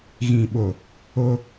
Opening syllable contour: low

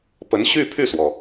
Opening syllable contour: rising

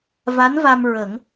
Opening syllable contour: rising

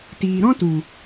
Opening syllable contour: low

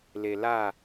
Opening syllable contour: low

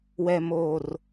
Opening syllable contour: low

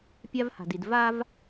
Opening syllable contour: high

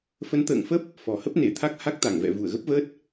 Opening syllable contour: rising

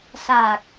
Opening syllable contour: low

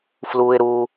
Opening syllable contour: high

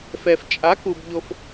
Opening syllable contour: low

